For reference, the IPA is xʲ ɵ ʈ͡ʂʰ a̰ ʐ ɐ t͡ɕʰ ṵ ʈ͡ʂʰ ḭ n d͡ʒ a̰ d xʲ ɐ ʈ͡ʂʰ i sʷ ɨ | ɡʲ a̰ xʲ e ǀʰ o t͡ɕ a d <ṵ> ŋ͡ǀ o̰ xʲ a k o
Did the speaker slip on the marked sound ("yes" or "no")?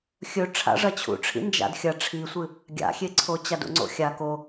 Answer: no